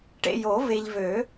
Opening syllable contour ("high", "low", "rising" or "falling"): low